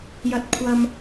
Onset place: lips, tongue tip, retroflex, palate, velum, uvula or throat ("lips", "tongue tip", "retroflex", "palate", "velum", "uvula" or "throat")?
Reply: palate